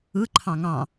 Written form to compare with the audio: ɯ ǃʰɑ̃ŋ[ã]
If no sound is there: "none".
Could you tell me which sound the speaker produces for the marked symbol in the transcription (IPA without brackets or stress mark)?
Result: ɑ̃